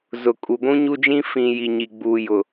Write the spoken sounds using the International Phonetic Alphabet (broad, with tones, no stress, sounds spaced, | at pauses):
z ʊ˨ kʼ u˨ ɡʷ ũ˦ ɲ u˦ d͡ʒ ĩ˦ f ĩ˨ j i˨ ɲ i˨ ɡ͡b uː˨ j ʊ˨